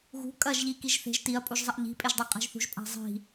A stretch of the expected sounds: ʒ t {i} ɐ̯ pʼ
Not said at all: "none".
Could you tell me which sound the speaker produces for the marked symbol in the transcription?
i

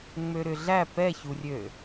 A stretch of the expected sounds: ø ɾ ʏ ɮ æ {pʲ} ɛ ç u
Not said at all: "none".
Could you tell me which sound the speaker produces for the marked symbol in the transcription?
p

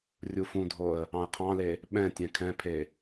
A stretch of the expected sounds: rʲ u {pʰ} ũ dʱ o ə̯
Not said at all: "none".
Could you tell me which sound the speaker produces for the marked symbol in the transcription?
f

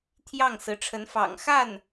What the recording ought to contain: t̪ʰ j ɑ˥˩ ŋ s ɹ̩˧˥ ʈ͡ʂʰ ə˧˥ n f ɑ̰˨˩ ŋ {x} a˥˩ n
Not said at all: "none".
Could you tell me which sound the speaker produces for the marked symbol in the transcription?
x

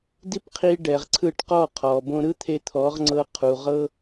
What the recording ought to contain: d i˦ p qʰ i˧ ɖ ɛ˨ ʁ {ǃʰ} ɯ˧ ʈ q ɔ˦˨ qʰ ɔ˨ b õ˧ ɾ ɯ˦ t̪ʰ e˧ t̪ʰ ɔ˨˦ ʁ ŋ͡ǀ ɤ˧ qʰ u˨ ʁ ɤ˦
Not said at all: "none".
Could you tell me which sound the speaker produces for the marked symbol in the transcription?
ǀʰ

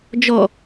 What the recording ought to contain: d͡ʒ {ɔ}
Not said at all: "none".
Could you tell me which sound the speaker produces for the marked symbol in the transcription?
ɔ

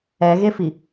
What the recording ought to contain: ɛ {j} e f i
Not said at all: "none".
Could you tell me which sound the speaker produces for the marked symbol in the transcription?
ɣ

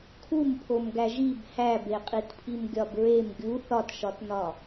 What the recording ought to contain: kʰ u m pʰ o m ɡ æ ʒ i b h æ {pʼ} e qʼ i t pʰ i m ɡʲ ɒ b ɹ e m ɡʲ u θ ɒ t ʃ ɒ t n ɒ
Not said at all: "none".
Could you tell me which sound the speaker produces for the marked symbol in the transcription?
b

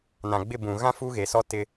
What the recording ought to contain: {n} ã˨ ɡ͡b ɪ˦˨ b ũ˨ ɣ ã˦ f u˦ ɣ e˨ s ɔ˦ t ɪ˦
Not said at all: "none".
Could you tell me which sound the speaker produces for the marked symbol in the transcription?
n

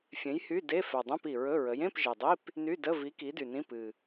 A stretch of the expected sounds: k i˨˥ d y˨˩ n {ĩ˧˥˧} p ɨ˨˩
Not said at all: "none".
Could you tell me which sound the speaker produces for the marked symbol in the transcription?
ĩ˧˥˧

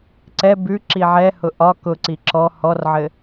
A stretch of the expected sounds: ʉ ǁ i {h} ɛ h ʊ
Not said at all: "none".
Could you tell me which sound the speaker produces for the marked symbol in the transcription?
ʕ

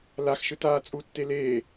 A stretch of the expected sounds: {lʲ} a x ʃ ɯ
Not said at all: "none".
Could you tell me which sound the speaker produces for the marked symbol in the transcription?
l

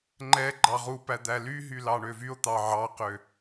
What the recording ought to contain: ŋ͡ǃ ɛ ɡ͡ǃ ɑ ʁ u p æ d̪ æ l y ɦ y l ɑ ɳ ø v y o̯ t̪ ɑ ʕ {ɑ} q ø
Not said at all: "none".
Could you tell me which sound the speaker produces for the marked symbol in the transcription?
ɑ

